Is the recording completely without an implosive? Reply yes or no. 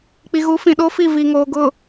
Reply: no